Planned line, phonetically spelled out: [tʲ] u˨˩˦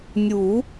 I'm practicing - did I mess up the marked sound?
yes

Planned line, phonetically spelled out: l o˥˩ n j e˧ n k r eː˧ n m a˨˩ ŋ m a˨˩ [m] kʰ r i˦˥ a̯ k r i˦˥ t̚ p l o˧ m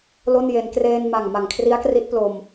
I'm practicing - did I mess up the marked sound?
yes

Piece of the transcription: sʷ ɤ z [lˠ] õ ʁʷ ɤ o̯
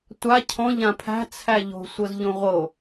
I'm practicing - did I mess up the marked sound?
yes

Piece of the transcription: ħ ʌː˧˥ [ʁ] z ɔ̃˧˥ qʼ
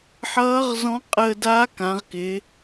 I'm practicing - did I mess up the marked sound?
no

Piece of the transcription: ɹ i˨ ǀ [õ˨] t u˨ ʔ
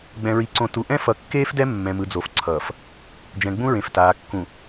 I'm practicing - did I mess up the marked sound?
no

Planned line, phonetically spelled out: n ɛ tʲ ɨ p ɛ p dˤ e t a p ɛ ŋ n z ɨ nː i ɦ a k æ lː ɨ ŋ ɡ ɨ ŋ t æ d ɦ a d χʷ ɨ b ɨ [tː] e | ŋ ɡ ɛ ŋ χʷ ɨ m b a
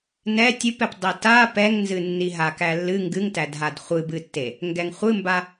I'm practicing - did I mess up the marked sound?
no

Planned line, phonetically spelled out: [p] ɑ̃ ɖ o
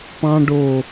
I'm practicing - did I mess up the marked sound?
no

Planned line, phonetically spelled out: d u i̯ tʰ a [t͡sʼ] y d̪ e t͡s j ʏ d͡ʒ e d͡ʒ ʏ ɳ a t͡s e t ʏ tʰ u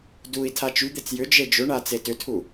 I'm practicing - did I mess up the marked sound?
yes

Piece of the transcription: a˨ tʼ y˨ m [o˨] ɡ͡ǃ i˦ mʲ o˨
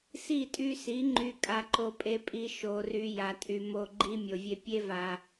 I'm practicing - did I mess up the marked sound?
no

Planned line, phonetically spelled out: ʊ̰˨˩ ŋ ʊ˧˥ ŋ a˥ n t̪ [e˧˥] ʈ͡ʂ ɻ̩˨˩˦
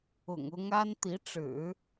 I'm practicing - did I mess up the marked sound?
yes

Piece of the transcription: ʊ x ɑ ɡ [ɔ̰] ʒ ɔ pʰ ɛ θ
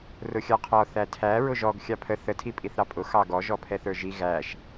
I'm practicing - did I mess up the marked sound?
yes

